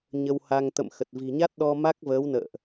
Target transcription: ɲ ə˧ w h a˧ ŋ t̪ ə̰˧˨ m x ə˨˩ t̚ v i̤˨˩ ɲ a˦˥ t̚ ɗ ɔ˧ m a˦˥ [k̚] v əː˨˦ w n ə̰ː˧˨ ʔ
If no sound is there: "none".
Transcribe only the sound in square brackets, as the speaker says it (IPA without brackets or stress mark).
k̚